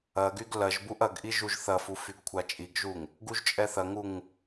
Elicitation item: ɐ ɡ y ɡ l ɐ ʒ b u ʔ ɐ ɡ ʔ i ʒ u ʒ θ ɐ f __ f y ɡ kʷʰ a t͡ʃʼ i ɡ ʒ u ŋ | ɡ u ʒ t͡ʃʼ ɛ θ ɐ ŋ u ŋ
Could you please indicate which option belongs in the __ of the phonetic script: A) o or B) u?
B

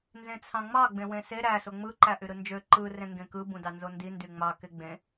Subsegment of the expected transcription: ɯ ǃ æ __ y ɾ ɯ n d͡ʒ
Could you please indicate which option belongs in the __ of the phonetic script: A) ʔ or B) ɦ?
A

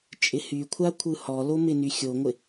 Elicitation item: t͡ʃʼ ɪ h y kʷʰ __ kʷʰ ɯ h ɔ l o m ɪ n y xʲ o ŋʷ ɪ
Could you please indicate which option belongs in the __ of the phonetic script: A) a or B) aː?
A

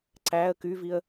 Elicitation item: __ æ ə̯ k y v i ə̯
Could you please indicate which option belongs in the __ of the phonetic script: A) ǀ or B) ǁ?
A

